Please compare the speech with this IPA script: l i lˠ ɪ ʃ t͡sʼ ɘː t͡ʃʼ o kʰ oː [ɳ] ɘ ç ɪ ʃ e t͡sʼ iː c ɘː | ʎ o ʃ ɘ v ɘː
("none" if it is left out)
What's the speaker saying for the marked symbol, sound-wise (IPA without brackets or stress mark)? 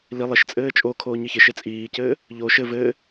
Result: ɲ